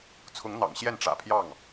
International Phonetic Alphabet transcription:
t͡sʰ ʊ˧˥ ŋ n̪ ɑ̰˨˩ ŋ ɕ j ɛ˥˩ n ʈ͡ʂ ä̰˨˩ pʰ j ɑ˥˩ ŋ

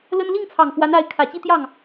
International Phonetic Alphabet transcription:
l ə˥ n l i˥˩ ŋ t͡sʰ ɑ˨˩ ŋ f w a˧˥ n a˧˥ ɪ̯ kʰ ä˨˩ t͡ɕ i˥˧ t̪ j ɑ˥˩ ŋ

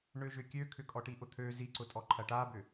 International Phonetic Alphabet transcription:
ɳ ø ʒ ʏ kʲ ø kʰ ʏ kʼ ɔ ʈ i ʔ ʊ t̪ʰ ø z i ǀ ʊ tʼ ɔ ǃʰ ɐ ʈ a b ʏ

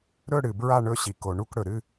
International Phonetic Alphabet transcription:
ɾ ɵ˥˧ ɽ ɨ˨ b ɹ a˥˧ ɳ ɵ˥˧ ɕ i˨ k o˨ ɳ u˥˧ k ɽ ɵ˨ ɾ ɨ˥˧

